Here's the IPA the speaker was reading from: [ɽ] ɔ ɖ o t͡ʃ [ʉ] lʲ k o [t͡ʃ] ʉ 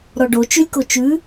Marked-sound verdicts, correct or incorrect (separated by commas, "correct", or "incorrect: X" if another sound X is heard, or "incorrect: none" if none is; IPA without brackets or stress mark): incorrect: ɾ, correct, correct